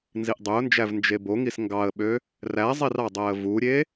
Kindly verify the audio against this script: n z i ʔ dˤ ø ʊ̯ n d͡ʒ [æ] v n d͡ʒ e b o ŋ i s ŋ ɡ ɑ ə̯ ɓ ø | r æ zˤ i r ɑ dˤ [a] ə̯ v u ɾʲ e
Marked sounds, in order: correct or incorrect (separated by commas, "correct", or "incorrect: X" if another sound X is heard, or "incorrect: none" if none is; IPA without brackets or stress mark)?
correct, incorrect: æ